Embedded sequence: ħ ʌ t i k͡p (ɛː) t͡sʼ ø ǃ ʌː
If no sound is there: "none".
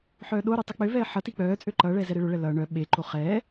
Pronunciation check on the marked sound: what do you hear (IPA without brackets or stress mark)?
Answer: œː